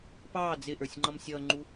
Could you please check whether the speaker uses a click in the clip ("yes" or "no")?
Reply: yes